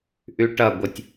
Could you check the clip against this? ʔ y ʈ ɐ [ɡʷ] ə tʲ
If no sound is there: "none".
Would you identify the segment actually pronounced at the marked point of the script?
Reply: ɡʷ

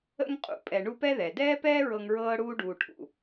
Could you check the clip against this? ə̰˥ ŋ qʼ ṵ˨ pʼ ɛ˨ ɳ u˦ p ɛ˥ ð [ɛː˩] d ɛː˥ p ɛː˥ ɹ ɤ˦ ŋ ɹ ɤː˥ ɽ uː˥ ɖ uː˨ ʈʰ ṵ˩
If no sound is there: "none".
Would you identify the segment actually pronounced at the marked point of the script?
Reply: ɛ˩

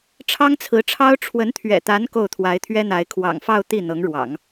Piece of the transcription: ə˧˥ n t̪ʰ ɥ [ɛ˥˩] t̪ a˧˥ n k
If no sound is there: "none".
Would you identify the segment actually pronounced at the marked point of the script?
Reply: ɛ̰˨˩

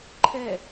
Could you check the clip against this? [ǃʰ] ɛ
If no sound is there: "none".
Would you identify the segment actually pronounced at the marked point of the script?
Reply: ǃʰ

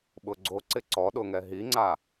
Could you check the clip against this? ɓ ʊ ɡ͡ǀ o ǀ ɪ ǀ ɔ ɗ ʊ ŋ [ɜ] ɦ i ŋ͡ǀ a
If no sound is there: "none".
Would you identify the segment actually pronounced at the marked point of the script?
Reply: ɛ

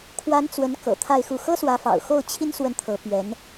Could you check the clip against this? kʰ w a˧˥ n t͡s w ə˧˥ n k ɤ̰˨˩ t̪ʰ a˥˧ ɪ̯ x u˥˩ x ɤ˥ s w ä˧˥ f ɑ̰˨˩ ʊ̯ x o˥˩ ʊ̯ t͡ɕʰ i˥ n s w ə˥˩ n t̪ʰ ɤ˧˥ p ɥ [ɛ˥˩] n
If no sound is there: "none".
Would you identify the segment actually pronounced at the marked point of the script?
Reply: ɛ˧˥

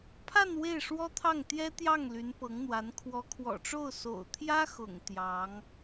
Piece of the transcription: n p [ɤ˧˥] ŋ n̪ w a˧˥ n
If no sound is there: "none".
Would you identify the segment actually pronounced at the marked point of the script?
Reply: ɤ˧˥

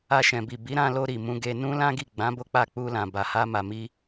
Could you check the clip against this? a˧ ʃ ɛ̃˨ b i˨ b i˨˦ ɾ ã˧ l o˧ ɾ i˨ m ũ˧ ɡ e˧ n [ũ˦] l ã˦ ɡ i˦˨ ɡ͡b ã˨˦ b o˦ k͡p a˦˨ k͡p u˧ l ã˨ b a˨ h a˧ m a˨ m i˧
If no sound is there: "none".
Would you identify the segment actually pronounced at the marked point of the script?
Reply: ũ˦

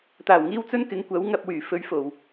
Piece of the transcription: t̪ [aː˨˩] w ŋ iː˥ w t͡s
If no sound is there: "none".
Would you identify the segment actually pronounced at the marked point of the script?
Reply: aː˨˩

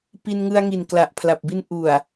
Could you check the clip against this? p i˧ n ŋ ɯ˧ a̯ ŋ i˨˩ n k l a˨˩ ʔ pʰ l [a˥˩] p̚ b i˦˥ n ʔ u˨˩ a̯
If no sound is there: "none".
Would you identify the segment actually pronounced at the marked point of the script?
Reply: a˨˩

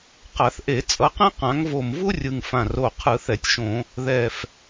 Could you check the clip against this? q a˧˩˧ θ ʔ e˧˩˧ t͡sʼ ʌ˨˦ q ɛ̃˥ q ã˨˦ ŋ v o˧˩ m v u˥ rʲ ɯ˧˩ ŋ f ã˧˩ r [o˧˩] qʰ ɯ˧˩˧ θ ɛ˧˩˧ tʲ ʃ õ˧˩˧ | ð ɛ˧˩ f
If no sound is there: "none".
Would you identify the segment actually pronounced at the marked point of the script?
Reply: o˧˩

